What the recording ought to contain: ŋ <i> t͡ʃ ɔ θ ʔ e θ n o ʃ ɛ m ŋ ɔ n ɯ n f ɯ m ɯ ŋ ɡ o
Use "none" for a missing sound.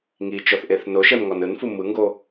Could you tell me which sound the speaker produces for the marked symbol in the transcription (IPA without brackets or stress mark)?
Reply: i